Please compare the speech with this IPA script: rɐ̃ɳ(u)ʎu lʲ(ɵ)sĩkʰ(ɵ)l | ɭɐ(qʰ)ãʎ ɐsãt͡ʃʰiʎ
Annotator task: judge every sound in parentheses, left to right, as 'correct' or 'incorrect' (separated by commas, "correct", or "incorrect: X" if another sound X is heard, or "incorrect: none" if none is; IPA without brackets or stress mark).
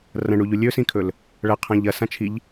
correct, correct, correct, correct